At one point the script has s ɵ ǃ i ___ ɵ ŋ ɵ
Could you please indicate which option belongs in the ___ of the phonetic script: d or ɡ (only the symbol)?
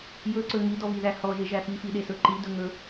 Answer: d